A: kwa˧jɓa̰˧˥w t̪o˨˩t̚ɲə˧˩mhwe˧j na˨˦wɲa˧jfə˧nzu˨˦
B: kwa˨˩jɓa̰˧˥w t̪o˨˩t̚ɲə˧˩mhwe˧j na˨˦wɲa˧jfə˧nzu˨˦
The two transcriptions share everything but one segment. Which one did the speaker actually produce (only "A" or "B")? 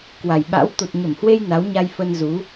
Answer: B